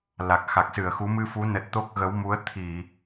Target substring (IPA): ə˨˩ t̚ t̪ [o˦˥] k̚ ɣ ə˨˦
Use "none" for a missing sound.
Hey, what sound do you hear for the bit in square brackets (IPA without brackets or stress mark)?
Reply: o˦˥